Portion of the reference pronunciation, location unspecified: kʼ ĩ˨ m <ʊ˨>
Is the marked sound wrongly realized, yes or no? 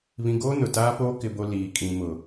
no